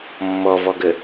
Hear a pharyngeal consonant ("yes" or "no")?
no